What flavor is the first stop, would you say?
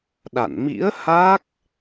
implosive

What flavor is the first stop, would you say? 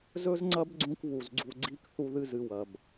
click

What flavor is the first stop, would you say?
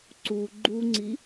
click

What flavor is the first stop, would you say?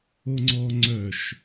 click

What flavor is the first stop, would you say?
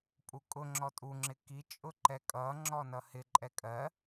ejective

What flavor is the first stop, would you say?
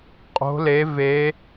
ejective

